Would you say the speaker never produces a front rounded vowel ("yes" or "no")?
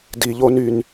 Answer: no